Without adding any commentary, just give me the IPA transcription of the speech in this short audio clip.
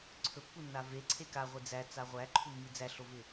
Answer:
ǀʰ ɵ pː u nː a v e ǀʰ e k a ʁʷ i d͡z æ t͡s a ʁʷ æ ǃʰ u mː i d͡z æ ɬ o v ɪ

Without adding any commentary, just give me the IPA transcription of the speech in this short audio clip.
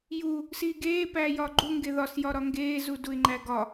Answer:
j u | s iː ɡ eː p æː j ɒː ɡ͡ǃ u ŋ ɡ e ð ɒ s j ɒ ɾ ɒ ŋ ɡ eː z u d u ɪ̯ ŋ͡ǃ æ ɡ ɒ

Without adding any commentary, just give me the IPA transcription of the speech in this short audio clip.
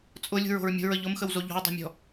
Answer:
t͡sʼ ʊ lʲ ṳ ɹ o̤ ɹ mʲ o̤ ɹ ə ʎ ʊ m x ə w z o ʎ ɔ̤ w dˤ o̤ mʲ ɔ̤

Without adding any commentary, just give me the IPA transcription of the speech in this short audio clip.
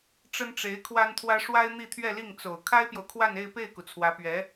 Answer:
ʈ͡ʂ ə˥ n ʈ͡ʂ e˧˥ ɪ̯ kʰ w a˥ n t̪ʰ w ä˥ ʂ w a˥ ɪ̯ n̪ i˥˧ t̪ʰ ɥ ɛ˥˧ l i˥˩ ŋ t͡s o˨˩ ʊ̯ kʰ a˥ ɪ̯ p j o˨ ʊ̯ kʰ w a˥˧ n e˥˧ ɪ̯ p e˥˩ ɪ̯ k u˩ t͡sʰ w ä˧˥ p ɥ ɛ˧˥

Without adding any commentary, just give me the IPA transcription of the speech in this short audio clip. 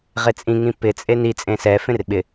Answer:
ʁ e t͡sʼ ĩ ŋ ĩ p ɪ t͡sʼ e n i t͡sʼ ẽ s ɛ f ẽ r ɓ ɪ

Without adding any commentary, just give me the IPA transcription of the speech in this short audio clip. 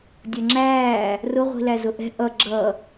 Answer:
dʲ ʌ ŋ͡ǁ æː | r ʊ ʁʷ i̤ l æ z ʊ ʔ ɛ̤ ʔ ʌ ɡ͡ǁ ʌ

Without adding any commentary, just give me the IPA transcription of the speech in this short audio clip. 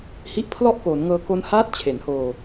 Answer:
h i˦˥ ʔ pʰ l ɔ˥˩ ʔ k oː˩˦ n ŋ ɤː˧ k o˦˥ n h aː˥˩ t̚ t͡ɕʰ e˩˦ n h oː˧

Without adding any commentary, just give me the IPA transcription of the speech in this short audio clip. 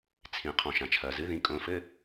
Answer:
t͡sʰ ĩ˩ qʰ ɔ̃˩ ʃ ã˩ t͡ʃʰ ɐː˩ z ɨ˩˥ ð ĩ˩˧˩ kʼ õ˩˧˩ f ɘ˧˥˧

